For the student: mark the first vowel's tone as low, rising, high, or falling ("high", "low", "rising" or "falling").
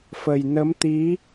low